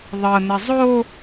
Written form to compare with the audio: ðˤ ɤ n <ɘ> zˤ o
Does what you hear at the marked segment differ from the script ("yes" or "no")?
no